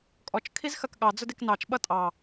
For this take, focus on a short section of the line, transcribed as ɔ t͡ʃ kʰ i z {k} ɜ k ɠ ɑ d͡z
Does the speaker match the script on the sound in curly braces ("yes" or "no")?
no